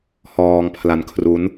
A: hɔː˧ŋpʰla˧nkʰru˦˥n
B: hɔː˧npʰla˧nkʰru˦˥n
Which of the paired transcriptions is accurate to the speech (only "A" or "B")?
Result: A